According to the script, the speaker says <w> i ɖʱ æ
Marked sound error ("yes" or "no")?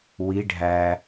no